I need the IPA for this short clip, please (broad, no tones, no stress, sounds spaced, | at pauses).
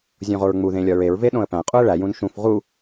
zʲ õ ʁ o ɹ ŋ͡m u ð ẽ lʲ ɒ ɹ e ɹ v e ɗ õ ə̯ p æ̃ qʼ u ə̯ ɭ æ j ũ n ʃ ũ f ʁ u